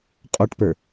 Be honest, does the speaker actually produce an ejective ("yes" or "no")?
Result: yes